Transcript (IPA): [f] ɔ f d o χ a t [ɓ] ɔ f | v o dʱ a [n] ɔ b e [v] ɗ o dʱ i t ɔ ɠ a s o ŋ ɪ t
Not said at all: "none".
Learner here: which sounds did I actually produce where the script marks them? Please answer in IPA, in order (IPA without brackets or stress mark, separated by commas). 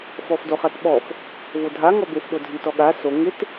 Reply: f, ɓ, ŋ, f